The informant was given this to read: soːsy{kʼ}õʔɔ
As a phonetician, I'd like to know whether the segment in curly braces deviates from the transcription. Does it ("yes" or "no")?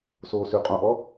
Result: yes